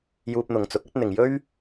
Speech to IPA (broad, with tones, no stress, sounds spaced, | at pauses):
j uː˧ p̚ n̪ ʊ˨ ŋ t͡s ʊ˨˥ k̚ ɐ˥ t̚ n̪ ɪ˨ ŋ j ɵ˥ ɥ